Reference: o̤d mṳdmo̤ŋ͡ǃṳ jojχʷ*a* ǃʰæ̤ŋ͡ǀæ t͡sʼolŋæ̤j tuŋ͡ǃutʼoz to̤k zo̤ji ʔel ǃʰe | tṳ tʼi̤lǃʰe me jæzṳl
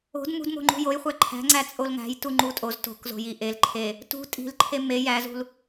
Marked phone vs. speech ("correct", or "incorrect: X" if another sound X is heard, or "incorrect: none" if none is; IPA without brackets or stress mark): incorrect: æ